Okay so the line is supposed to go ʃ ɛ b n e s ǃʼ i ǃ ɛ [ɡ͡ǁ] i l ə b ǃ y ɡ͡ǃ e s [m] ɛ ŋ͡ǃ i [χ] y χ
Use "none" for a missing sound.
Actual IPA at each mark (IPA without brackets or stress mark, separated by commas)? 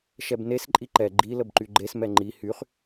ɡ͡ǃ, m, h